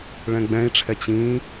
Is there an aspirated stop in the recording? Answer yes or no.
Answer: yes